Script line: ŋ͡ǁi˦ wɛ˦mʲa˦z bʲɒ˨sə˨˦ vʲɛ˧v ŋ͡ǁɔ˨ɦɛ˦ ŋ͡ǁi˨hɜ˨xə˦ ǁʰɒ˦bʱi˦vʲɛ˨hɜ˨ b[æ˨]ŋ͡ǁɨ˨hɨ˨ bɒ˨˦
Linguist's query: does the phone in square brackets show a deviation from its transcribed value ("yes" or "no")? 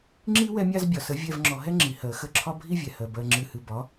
yes